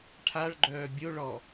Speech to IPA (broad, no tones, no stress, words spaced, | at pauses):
ʈʰaɭɡ͡ǃœː bʲo ɭɔ